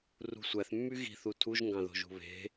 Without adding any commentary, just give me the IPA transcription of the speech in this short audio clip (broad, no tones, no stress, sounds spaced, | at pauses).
r ṳ sʷ æ θ mː y ɣ i̤ θ u tʰ u ʒ ŋ ɡ ɑ̃ ð o̤ ʒ ṳ β e̤